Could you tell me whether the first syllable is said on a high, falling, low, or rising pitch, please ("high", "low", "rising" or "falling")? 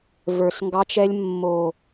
low